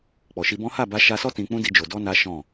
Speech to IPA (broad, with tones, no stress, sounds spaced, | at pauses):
k͡p ɔ˨ ʃ i˧ b ɔ̃˦ h a˦˨ b a˧ ʃ a˧ s ɔ˦ t ĩ˧ k͡p ũ˦ d i˧ d͡ʒ o˨ d ɔ˧ n a˦ ʃ ɔ̃˦˨